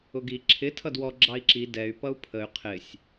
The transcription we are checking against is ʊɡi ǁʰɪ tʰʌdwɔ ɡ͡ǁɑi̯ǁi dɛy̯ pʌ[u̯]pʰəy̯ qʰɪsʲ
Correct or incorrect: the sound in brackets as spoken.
correct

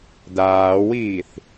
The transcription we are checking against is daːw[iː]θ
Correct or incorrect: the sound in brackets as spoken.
correct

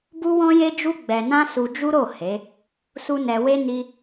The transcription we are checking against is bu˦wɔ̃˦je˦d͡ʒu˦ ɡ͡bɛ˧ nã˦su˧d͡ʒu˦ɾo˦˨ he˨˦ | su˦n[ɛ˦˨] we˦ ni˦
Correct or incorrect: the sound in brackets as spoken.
incorrect: ɛ˧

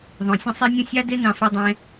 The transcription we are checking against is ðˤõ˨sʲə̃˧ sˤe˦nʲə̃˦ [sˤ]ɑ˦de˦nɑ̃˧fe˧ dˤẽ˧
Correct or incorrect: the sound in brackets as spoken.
incorrect: sʲ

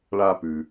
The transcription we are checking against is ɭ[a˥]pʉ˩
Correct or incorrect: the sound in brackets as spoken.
incorrect: a˧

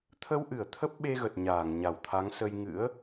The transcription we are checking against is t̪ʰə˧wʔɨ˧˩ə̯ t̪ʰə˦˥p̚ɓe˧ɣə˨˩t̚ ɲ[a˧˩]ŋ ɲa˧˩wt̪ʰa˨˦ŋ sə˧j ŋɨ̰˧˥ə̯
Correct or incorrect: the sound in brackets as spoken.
incorrect: aː˧˩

